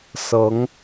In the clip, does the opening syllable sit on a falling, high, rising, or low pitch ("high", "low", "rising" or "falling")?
rising